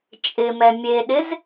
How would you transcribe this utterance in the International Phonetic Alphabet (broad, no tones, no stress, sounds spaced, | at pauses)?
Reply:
t͡ʃʼ ɪ m ɛ mʲ e ɗ ɪ z